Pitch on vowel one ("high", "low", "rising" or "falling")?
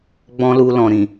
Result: high